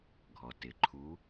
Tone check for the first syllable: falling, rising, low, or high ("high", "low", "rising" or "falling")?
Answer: low